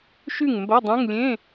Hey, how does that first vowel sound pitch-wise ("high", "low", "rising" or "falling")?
falling